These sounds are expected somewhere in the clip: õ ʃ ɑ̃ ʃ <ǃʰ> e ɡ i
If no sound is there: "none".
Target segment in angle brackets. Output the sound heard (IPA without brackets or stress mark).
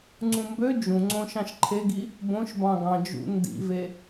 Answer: ǃʰ